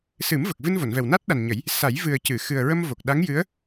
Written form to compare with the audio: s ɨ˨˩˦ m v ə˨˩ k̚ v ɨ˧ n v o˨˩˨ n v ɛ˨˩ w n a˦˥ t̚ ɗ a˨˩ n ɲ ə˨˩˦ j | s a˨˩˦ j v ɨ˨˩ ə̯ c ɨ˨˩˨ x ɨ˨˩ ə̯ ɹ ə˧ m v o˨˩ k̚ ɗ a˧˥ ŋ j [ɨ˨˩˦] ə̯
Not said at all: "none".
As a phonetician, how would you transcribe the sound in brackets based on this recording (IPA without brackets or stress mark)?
ɨ˧˥